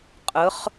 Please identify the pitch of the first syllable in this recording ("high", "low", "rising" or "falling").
rising